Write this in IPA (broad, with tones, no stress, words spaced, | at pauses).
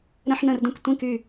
ɾə̃˥ħnə̃˥˧rdũ˥k tʷĩ˧˥˧ky˥˧